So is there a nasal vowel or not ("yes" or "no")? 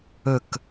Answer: no